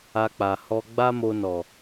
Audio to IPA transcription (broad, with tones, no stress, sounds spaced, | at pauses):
a˧ k͡p a˨ h ɔ˧ ɡ͡b a˦ m o˧ n ɔ˨